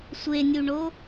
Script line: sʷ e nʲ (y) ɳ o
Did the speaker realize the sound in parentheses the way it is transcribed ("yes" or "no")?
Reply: no